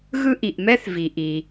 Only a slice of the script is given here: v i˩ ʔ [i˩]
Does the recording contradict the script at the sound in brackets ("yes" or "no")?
no